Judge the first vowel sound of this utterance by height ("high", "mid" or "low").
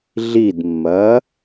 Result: high